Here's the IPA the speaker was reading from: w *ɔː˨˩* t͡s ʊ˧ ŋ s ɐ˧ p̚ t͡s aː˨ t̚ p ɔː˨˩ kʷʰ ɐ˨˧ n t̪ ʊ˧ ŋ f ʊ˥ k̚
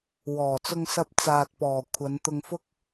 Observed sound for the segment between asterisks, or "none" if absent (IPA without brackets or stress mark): ɔː˨˩